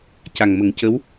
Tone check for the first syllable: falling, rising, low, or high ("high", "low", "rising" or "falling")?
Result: low